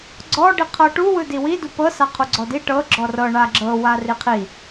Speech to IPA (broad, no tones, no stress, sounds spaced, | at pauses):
ɡ͡ǀ ɔ ɖ i qʰ ɤ ʈ u w ɯ d i w i d u p ɤ s a qʰ u ɡ͡ǀ ɔ d i ʈ ɤ ɡ͡ǁ ɔ r ɤ ɳ a ɡ͡ǁ ɤ w a r i qʰ i